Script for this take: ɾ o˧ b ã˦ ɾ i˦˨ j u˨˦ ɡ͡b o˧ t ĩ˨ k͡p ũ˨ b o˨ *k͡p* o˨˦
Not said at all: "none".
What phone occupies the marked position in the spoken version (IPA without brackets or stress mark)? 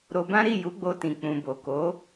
k